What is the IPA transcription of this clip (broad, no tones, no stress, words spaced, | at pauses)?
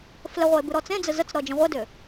flɘʁʷɘe̯ bɨɾɔt͡sẽd͡zɘ zət͡sɾɔ d͡ʒə̃ʁʷɘdʏ